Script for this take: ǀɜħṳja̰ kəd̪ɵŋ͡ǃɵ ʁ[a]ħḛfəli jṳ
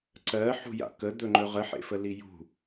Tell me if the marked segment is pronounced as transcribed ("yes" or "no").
no